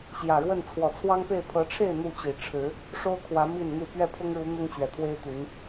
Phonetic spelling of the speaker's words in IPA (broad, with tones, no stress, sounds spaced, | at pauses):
ɕ j ä˨˩ ɻ w ə˥˨ n t͡sʰ w ɔ˨˩ t͡sʰ w ɑ˦ ŋ p e˥˨ ɪ̯ pʰ ɤ˨˦ ʈ͡ʂʰ e˥˨ ɪ̯ n̪ u˥˨ t͡ɕ i˨˩ ʈ͡ʂʰ ɻ̩˨˦ | ʂ o˦ ʊ̯ kʰ w ä˨˦ m i˥˨ n n̪ u˥˨ p ɥ ɛ˥˨ pʰ ʊ˦ ŋ ɻ u˨˦ n̪ ʊ˦ ŋ t͡ɕ ɥ ɛ˨˩ t̪ʰ w e˦ ɪ̯ t̪ y˨˦ n